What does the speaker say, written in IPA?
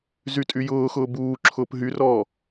z y tʼ y j ʊː x ʊː b uː ǁʰ ʊː p ɦ y r ɔː

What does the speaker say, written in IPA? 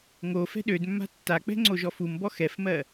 ŋ o f ɛ̤ ɗ ø d mː a̤ tː a k͡p ɛ̤ ŋ͡ǀ o ʒ ɔ f u m b ɔ x ɛ f m ɜ

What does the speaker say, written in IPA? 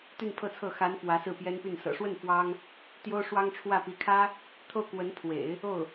t̪ y˥˧ n pʰ ɤ˥˧ t͡sʰ ɤ˥˩ x a˧˥ n f w ä˧˥ s ɹ̩˥˩ p j ɛ˥ n p y˥˩ n s ɤ̰˨˩ ʂ w ə˥˩ n f w ɑ˥ ŋ | t̪ j o˥ ʊ̯ ʂ w ɑ˥ ŋ ʈ͡ʂʰ w ä˥˩ p i˧˥ kʰ ä˥ | t̪ʰ o˥˩ ʊ̯ k w ə˧˥ n pʰ w ḛ˨˩˦ ɪ̯ | o˥˩ ʊ̯

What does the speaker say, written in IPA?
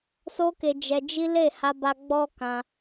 s o˦ k e˧ d͡ʒ ɛ˧ d͡ʒ i˦ l e˦˨ h a˧ b a˧ ɡ͡b ɔ˦ k ã˧

